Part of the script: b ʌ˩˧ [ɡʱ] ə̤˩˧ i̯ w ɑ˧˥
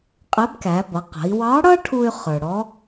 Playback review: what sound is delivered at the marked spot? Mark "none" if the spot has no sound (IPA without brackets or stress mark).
q